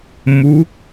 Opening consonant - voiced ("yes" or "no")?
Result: yes